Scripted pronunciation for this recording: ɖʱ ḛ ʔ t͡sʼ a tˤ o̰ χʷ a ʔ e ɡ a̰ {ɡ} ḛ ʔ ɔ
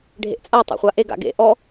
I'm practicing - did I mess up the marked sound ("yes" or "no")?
no